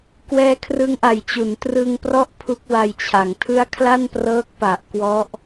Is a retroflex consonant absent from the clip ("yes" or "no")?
yes